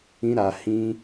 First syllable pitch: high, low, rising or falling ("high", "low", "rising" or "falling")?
high